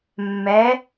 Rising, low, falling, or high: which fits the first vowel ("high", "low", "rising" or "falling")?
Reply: rising